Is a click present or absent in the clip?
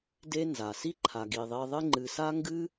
present